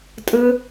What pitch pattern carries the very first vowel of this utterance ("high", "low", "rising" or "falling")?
high